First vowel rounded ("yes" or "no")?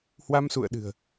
no